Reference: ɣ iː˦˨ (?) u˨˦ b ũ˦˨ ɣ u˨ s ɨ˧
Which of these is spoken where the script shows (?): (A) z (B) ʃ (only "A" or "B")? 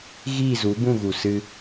A